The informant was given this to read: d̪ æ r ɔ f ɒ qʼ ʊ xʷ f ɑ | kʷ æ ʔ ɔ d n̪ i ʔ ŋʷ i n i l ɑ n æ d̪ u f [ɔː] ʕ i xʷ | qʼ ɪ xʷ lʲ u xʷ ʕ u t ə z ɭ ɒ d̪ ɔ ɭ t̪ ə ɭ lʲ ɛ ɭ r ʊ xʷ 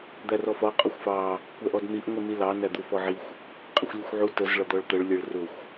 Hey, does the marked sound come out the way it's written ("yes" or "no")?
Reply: no